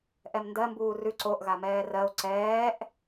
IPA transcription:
ʔ ɛ m n d ɜ m b uː r ʉ ǀ o ʔ ɣ a m ɛː r ɜ o̯ ǀ ɛː ʔ

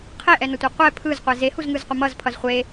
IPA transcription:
qʰ e ʔ ɛ n ʌ tʷ e qʷ ɛ pʰ ɯ z qʷ ɛ z e h u z ŋ ɯ z qʷ ʌ m ʌ z pʰ ʌ z χʷ e

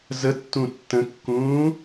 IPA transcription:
z ə tː ũ tː ə̃ kː ũː

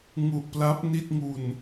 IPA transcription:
ŋ u˨˩ ʔ p l a˦˥ p̚ n i˥˩ t̚ ŋ u˨˩ n

